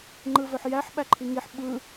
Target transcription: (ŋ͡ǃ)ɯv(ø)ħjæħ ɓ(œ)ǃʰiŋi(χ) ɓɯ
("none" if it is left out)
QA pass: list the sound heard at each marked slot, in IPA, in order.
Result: ŋ͡ǃ, ø, æ, ħ

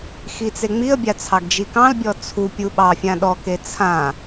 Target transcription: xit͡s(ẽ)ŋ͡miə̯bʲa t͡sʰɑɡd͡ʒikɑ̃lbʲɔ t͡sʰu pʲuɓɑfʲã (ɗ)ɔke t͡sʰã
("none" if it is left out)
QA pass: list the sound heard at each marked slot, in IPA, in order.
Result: e, ɗ

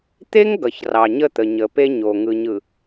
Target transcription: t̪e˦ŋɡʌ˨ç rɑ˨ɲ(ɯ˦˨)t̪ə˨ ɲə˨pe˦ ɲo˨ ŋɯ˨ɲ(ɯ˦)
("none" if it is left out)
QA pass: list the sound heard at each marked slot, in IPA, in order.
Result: ə˦˨, ɯ˨

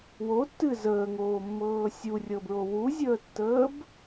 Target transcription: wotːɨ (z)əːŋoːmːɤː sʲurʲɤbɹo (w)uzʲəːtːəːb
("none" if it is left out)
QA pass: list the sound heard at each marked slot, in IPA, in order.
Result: z, w

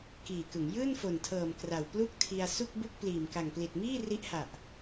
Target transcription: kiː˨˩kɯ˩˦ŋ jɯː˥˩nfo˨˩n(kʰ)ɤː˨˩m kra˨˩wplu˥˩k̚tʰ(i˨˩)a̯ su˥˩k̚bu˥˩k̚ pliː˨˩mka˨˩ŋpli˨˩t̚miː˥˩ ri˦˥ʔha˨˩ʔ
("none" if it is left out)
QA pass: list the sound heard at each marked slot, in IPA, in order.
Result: tʰ, i˧

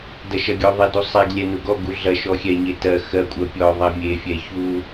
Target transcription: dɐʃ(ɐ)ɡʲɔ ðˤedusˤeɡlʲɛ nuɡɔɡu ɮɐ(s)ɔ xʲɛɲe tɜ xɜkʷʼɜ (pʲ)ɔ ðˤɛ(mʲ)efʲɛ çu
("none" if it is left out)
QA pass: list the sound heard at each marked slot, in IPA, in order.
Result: ɐ, ʃ, pʲ, mʲ

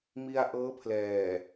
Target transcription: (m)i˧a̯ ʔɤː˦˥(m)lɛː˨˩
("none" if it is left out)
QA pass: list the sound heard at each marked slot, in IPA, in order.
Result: m, pʰ

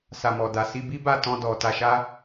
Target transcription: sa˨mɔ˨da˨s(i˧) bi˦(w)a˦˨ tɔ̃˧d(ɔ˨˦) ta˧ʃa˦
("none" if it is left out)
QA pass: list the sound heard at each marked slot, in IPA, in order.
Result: i˧, b, ɔ˨

